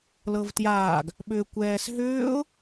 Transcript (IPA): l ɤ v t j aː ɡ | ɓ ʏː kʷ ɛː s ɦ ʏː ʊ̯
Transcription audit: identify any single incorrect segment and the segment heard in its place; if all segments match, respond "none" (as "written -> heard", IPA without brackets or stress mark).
none